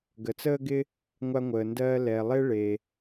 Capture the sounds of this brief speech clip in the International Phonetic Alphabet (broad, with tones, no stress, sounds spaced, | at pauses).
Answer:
ɡ ə˩ t͡s əː˥ ɡ ɪ˥ | ŋʷ a˧ ŋʷ əː˩ n d ɜː˧ l ɛ˩ lˠ e˥ ɭ e˩